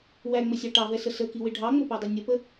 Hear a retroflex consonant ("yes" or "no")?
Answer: yes